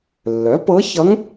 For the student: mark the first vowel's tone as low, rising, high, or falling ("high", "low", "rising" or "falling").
rising